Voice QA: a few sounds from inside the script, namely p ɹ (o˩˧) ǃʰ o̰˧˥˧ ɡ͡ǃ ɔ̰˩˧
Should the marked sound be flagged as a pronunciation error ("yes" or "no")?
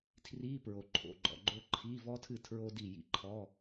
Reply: no